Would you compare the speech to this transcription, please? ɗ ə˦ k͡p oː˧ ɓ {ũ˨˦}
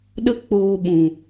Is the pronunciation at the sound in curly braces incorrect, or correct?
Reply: incorrect: ũ˨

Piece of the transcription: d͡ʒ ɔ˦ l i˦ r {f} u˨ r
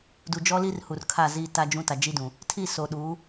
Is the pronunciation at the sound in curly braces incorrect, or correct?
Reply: incorrect: h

